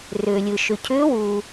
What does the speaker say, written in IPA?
rʏː˩lʲɯ˩ ʃʏ˩cʰʏː˨˥wu˩

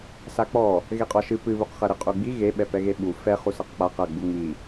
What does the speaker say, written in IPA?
sak͡pɔ | ɣeqʼɔʃɨ pɨβuqχɐɾɨ qʼuɡ͡bi ɣeɓɛpɛɣe ɓu fɛχusɐq k͡pa qɐɡ͡bu ŋ͡mi

